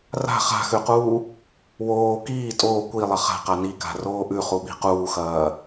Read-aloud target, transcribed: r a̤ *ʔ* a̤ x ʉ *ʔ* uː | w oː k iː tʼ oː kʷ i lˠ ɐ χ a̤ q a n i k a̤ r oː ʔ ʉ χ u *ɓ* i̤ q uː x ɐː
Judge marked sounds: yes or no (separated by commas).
no, no, yes